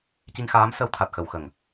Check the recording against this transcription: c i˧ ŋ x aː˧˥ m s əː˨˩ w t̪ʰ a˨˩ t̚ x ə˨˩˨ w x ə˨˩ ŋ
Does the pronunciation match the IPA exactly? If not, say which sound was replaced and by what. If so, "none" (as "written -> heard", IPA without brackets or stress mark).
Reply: əː˨˩ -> əː˧˥